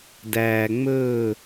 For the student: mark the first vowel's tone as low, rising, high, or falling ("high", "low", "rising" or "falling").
low